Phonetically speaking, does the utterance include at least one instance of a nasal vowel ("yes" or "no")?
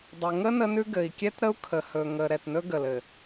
no